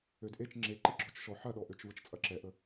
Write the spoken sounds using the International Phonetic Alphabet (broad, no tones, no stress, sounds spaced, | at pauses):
ø d ʔ e t͡ʃ ŋ͡ǁ e ǃ i ɡ͡ǁ ɔ t͡ʃ ʃ ɔ ħ ɐ ɗ ɔ ʔ ø t͡ʃ v ə t͡ʃ t͡sʼ ɐ ǁ ɛ ʔ ə